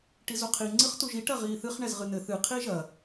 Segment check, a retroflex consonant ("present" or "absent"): present